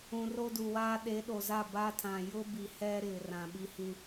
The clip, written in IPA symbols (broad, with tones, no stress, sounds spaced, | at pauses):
ũ˨ r o˦ d u˨ w aː˦ ɗ e˨˦ ɗ o˨ z a˦˨ b a˦ tʰ ã˨ j ʊ˦ b i˨ h ɛ˦ ɾ ɪ˨ r ã˨ ɓ i˦ h ĩ˦